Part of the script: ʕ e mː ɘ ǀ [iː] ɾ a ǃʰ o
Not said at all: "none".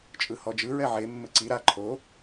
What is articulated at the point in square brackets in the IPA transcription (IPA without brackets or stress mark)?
i